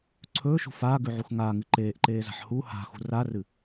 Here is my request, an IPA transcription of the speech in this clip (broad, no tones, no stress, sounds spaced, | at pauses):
ǀʰ ɵː ʃ ṳ f aː ɡ ʉ ʕ u x ŋ aː ŋ ɨ ǃ eː ʔ ǃ eː z a̤ ħ h u h a̤ x ṳ r a r ɨ